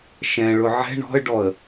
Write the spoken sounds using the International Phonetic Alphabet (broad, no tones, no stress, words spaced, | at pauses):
ʃɛ̃ɭʊ ʕɛ̤ ɳɔ̤ə̯ɖɔə̯